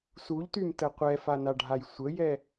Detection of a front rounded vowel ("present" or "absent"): present